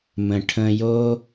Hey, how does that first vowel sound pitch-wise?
low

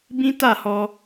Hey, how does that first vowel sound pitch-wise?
high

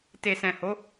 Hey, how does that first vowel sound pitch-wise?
low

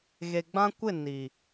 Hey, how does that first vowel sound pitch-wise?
low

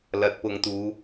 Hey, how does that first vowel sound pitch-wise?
rising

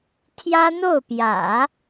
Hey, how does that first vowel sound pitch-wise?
high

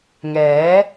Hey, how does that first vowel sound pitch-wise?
rising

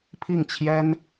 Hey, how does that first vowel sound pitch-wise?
falling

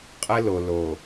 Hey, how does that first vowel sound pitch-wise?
high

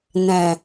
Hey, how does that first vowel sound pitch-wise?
low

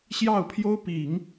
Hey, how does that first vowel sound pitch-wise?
falling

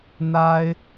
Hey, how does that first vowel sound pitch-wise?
high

